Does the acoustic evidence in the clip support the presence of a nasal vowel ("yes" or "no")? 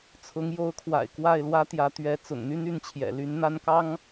no